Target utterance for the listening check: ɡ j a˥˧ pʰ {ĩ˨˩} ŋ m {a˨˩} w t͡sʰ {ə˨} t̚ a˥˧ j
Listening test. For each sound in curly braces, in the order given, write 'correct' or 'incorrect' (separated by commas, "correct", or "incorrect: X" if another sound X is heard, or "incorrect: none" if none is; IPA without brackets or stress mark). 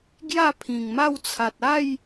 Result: correct, incorrect: a˥˧, incorrect: a˨